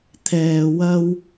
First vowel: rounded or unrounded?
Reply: unrounded